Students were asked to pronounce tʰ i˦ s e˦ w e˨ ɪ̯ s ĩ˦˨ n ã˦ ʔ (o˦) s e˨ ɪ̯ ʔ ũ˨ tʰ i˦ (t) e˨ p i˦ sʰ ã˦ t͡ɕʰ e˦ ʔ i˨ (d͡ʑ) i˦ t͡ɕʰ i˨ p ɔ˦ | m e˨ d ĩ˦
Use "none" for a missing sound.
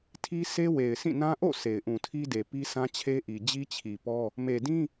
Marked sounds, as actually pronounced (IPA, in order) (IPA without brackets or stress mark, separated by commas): o̰˦˨, d, d͡ʑ